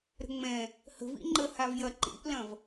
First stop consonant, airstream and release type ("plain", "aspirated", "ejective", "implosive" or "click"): click